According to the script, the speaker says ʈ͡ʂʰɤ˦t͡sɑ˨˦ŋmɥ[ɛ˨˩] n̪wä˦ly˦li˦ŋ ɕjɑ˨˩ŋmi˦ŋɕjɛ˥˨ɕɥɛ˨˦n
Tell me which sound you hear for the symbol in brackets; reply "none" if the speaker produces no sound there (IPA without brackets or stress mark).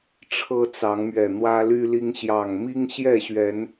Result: ɛ˨˩